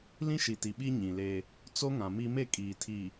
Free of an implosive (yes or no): no